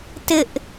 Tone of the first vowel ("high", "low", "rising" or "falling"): high